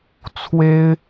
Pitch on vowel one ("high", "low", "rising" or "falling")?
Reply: high